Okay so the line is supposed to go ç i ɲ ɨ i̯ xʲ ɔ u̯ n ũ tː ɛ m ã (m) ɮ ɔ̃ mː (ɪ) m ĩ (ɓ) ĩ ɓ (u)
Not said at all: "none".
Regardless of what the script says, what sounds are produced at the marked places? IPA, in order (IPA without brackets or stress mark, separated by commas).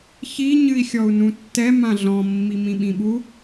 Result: none, i, ɓ, u